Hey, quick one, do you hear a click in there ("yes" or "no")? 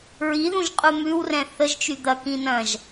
no